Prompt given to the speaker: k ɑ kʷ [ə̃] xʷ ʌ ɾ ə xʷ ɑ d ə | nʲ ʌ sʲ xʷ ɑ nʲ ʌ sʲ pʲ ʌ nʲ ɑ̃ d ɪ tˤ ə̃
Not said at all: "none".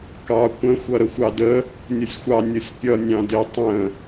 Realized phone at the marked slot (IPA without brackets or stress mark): ə̃